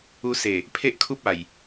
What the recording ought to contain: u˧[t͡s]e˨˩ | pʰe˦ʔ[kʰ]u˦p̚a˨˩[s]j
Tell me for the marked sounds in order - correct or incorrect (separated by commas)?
incorrect, correct, incorrect